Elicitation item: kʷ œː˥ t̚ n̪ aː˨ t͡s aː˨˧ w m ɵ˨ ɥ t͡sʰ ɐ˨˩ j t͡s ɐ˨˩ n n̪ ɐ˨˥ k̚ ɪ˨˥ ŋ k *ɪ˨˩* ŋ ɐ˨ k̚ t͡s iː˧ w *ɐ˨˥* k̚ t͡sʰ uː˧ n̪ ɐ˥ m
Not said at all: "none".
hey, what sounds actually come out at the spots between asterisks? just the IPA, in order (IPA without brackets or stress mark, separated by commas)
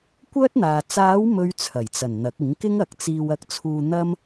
ɪ˥, ɐ˧